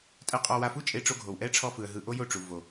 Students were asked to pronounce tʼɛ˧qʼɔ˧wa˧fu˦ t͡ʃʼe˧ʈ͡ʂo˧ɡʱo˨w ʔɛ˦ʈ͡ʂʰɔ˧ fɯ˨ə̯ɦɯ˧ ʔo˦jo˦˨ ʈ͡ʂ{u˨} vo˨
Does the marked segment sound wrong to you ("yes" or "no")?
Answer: no